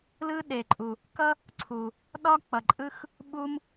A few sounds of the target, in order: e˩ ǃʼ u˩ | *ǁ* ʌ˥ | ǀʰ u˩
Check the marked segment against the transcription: incorrect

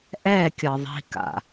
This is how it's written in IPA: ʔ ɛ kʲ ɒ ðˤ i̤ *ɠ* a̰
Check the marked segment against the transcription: incorrect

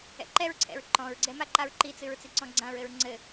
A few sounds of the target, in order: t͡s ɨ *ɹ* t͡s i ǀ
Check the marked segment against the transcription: correct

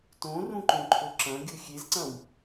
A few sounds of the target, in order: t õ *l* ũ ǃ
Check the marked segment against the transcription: incorrect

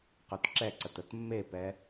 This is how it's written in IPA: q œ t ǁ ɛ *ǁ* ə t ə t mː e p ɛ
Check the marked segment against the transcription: incorrect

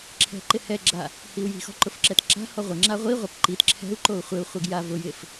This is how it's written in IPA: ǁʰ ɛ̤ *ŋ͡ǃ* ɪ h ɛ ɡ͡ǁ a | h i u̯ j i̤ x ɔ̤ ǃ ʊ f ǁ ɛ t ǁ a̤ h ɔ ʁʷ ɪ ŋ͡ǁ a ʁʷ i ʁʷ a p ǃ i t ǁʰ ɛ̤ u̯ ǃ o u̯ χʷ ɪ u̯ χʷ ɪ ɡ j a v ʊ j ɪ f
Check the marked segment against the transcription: incorrect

